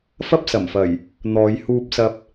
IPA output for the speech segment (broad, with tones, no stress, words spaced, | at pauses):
fɐ˥p̚sɐ˨˩mfɐ˨˩j | n̪ɔː˨˧j huː˧p̚sɐ˧p̚